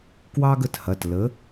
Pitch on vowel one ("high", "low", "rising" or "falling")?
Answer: high